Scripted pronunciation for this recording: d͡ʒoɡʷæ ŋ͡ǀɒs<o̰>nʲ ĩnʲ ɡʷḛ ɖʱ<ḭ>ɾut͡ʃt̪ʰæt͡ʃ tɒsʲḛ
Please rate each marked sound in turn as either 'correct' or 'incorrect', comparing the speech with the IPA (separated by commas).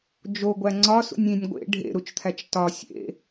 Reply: incorrect, incorrect